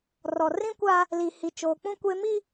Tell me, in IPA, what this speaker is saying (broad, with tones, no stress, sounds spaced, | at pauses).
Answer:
r ɔ˨ r ĩ˦ kʷ aː˦ | l i˨ h i˨ t͡ʃ oː˨ k͡p ũ˦ kʷ eː˦ m i˦